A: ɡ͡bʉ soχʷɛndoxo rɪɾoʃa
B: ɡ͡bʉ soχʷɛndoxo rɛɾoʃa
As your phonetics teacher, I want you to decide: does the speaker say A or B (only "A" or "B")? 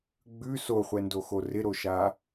A